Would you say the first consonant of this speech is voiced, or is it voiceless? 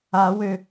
voiced